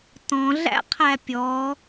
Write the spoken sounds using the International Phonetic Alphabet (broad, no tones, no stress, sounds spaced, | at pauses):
t ɔ̃ ɮ æ̰ qʰ æ pʲ ɔ